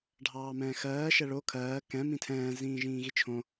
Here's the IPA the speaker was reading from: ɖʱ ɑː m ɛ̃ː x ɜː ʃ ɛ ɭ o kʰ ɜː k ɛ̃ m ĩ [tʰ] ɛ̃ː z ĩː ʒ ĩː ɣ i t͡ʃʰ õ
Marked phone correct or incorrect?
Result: correct